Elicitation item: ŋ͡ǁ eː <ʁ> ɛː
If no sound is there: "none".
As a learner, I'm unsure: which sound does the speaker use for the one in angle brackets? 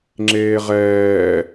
ʁ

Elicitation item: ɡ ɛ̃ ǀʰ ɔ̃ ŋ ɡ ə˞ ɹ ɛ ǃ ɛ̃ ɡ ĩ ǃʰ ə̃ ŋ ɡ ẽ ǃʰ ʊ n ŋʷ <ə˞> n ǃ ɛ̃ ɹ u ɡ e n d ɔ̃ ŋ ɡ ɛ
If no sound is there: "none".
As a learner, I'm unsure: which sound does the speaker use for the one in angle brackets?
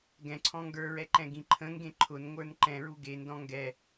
ə˞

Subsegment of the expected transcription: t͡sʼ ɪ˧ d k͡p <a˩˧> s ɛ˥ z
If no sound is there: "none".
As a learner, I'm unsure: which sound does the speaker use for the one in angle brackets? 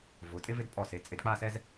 a˥˧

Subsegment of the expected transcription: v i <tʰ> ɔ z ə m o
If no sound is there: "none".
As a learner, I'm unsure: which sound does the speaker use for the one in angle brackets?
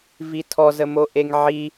tʰ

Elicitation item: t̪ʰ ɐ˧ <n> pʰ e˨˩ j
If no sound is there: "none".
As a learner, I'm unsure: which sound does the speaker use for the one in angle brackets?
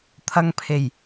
ŋ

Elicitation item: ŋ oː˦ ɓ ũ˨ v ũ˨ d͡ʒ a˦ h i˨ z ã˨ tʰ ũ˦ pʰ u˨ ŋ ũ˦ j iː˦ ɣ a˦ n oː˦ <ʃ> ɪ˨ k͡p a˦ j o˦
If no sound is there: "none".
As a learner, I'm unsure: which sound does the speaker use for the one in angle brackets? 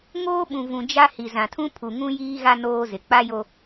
z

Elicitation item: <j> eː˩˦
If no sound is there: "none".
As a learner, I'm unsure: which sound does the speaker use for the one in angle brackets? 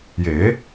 j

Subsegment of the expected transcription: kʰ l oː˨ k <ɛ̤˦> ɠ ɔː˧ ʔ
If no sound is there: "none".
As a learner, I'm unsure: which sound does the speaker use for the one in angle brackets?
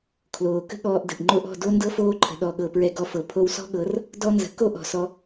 ə̤˦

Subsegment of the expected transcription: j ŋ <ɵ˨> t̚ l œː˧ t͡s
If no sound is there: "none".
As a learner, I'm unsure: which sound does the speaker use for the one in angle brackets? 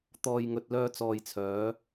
ɵ˨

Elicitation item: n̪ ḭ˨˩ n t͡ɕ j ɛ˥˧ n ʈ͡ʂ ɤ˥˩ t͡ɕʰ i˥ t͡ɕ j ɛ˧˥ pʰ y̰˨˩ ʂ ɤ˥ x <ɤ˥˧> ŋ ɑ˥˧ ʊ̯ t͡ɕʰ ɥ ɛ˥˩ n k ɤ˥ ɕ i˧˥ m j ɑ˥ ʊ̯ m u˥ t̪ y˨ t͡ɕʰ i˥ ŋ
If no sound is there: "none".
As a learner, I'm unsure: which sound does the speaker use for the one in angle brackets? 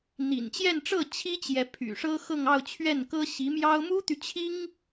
ɤ˥˧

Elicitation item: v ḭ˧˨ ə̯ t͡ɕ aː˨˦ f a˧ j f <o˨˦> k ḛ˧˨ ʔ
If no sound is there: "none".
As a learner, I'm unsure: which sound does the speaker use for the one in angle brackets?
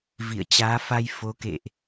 o˨˦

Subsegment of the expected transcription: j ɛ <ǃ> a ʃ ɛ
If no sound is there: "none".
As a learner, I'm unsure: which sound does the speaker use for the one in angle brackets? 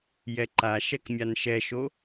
ǃ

